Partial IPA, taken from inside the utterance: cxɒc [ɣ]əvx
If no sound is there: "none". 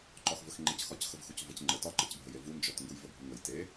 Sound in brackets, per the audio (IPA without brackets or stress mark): x